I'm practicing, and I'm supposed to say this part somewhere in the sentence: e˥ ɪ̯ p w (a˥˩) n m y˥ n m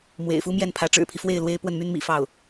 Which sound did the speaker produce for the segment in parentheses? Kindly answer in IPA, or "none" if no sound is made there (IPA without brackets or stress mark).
ə˥˩